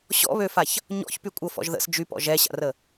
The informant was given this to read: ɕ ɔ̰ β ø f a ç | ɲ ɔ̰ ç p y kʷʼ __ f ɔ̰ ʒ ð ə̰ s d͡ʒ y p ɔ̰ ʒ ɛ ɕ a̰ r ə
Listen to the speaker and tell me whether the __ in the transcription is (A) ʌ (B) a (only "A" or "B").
A